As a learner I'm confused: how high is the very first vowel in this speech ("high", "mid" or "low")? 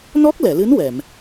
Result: mid